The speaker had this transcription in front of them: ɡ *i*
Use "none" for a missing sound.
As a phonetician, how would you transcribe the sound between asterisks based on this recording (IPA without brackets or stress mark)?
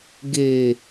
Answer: e